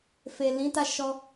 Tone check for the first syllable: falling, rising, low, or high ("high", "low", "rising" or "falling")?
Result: low